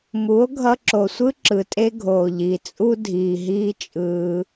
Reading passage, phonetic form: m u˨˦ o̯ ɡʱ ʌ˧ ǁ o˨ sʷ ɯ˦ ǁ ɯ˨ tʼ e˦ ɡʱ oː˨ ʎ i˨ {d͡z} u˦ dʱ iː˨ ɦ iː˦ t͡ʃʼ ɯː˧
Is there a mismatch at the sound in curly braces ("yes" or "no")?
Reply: yes